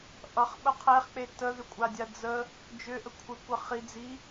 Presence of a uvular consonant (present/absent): present